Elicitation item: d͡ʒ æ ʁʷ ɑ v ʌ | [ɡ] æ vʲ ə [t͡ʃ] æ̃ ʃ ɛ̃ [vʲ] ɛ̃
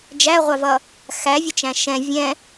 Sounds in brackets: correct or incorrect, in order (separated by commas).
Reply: incorrect, correct, correct